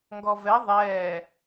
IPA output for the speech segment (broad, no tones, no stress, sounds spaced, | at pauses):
ŋ ɡ ɔ v ɛ ðˤ ɛː